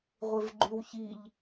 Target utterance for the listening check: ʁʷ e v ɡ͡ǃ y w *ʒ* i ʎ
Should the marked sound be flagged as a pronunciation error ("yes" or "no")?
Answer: yes